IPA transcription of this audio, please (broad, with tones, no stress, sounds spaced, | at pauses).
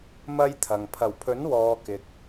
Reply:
m ɐ˥ j t̪ʰ ɐ˨ ŋ pʰ ɐ˨˩ w pʰ ɵ˨˥ n w ɔː˨ k ɪ˨ k̚